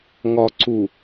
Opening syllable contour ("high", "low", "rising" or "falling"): low